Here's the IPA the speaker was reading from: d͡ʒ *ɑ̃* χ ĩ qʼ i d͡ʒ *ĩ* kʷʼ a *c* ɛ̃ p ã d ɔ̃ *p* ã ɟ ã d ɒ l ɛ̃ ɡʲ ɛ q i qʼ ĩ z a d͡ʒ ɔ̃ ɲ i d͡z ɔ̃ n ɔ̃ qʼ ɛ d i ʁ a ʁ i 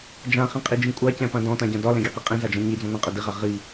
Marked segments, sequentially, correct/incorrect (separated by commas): incorrect, correct, correct, incorrect